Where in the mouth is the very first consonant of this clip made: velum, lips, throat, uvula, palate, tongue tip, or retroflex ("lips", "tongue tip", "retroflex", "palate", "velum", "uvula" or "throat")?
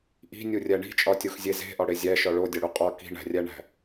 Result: throat